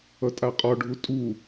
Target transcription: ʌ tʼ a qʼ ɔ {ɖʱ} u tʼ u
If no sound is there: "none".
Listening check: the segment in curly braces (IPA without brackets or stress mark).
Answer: ɖʱ